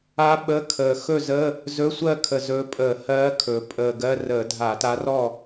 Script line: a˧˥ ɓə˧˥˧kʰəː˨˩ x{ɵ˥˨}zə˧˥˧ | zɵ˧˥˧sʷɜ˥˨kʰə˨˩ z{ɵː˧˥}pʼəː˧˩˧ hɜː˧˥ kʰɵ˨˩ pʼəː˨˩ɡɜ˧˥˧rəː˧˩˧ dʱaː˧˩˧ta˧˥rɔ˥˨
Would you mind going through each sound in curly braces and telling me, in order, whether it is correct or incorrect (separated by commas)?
correct, correct